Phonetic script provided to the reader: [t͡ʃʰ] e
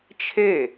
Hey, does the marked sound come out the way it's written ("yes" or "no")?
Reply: yes